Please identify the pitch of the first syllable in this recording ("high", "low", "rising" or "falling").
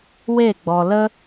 falling